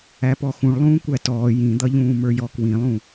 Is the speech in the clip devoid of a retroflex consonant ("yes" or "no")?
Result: no